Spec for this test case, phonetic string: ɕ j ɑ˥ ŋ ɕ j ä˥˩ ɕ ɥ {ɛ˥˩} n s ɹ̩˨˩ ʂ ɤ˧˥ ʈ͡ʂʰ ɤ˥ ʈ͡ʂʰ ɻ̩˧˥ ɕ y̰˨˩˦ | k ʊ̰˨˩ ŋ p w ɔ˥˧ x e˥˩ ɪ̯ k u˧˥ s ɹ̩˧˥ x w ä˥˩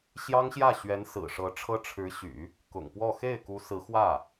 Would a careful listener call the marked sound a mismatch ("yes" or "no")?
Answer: yes